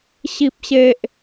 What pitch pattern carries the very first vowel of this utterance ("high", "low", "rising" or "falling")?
low